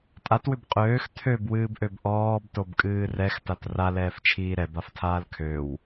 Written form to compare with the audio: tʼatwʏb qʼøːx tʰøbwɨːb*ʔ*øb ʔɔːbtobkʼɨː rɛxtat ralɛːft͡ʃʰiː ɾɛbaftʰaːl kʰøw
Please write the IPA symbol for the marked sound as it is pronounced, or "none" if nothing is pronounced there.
ʔ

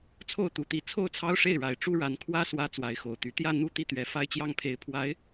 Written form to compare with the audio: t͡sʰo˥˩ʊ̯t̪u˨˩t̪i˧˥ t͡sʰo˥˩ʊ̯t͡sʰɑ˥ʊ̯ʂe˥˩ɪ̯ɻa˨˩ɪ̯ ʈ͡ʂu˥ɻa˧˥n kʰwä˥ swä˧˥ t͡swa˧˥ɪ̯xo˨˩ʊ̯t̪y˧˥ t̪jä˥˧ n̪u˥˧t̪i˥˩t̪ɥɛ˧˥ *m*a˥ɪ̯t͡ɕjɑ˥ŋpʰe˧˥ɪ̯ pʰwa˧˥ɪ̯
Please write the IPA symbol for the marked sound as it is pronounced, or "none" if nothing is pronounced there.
f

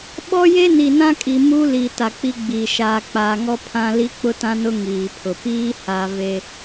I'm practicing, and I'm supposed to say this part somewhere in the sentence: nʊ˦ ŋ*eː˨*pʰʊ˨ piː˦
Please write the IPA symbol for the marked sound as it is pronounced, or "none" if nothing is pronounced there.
iː˨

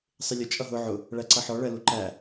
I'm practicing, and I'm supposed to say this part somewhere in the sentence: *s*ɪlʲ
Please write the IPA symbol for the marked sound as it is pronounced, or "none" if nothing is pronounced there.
sˤ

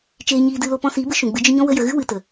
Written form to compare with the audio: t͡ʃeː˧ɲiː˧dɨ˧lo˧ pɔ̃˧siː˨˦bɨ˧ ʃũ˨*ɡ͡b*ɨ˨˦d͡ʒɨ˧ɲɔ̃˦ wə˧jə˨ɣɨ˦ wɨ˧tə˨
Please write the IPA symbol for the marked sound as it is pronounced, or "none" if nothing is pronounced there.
ɡ͡b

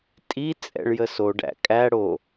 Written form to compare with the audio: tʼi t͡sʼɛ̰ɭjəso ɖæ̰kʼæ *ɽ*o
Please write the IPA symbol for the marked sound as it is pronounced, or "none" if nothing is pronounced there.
ɽ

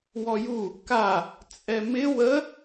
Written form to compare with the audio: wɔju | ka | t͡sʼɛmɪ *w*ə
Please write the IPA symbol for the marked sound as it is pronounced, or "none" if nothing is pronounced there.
w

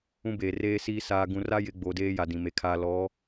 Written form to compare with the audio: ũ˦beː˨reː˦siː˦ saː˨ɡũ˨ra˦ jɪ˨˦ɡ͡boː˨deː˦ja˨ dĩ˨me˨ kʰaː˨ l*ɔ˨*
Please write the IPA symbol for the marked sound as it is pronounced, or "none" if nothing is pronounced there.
ɔ˨˦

